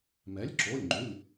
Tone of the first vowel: rising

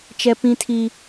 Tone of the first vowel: high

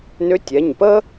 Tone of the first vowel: rising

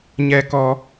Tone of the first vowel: low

